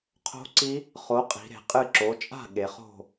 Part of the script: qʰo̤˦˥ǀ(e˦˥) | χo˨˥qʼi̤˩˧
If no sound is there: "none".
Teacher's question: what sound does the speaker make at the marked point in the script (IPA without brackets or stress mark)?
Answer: i˦˥